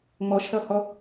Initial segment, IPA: ŋ͡m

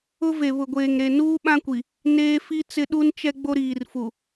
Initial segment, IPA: ʊ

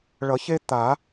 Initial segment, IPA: ɭ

